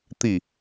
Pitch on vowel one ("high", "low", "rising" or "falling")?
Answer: falling